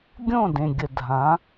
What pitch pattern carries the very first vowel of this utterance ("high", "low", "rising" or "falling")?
falling